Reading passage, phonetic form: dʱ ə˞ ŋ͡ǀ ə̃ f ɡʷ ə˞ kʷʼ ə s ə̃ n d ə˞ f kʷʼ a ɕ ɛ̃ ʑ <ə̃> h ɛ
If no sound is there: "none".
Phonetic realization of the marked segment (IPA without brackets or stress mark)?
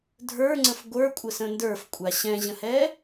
ə̃